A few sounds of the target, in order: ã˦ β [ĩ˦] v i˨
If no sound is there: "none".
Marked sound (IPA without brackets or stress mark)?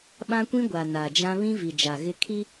ĩ˦